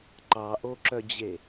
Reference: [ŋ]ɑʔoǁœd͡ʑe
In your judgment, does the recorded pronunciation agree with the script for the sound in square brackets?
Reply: no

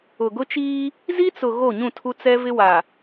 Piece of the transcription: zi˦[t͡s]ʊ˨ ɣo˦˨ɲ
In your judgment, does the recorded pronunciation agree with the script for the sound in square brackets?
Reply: yes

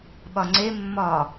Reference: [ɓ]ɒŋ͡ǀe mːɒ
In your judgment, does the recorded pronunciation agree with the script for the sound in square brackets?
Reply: yes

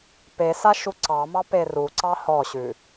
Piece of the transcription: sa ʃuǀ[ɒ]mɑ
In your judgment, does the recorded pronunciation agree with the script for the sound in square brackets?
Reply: no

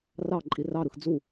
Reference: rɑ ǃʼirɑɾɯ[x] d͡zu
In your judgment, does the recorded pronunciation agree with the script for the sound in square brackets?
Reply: yes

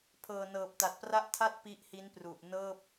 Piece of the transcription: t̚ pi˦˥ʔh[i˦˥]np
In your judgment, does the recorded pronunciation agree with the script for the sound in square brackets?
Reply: yes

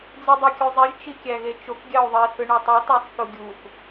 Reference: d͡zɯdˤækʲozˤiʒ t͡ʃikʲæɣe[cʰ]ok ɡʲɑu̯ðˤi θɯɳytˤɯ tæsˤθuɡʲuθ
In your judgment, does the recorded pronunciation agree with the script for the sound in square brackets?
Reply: no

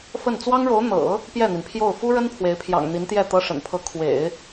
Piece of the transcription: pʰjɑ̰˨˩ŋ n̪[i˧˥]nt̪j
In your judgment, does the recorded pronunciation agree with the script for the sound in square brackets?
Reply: yes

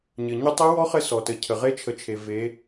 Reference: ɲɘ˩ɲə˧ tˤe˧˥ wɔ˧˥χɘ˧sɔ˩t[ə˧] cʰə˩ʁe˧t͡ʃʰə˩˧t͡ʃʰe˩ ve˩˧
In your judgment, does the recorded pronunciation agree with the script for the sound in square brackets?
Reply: no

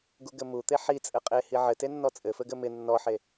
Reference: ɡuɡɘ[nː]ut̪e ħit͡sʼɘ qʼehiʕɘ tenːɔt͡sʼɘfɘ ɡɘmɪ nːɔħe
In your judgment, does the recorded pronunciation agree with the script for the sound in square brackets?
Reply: no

